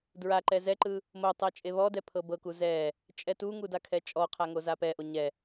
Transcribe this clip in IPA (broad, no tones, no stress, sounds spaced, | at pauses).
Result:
d ɹ a ǃ ɛ z ɛ ǃ ɯ | m o tˤ ɛ t͡ʃʼ e β ɔ d ɛ pʰ ɤ b ɤ k u z ɛ | t͡ʃʼ ɛ t u ŋ u d a kʰ ɛ t͡ʃʼ ɔ qʰ a ŋ o z a p ɛ ʔ o ɲ ɛ